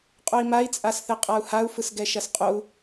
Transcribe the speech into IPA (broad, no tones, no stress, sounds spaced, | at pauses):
qʼ o i̯ m a i̯ t͡sʼ a s θ ɛ qʼ a u̯ h a u̯ f ɯ s ɡ ɛ ʃ ɐ s qʼ o u̯